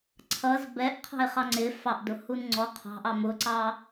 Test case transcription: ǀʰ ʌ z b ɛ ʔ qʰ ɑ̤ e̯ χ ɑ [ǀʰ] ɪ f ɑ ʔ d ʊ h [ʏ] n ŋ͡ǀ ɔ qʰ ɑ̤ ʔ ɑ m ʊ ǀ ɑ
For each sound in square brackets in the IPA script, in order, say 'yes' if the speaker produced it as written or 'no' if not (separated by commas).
no, no